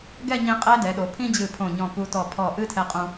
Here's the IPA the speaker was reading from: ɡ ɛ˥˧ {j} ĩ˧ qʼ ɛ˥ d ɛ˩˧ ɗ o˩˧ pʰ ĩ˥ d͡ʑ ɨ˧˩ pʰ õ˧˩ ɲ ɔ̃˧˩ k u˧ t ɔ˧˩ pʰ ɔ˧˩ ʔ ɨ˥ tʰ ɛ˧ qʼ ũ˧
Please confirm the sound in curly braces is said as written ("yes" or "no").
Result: no